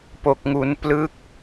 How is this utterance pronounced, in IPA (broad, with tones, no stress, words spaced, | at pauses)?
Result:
po˨˩k̚ŋu˩˦n plɯ˦˥k̚